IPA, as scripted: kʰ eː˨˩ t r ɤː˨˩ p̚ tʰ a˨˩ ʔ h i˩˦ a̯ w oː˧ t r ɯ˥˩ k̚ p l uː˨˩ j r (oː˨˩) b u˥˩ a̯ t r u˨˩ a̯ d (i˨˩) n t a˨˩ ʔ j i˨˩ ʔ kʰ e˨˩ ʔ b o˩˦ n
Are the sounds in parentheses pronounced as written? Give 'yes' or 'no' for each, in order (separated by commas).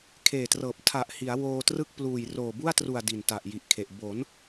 yes, yes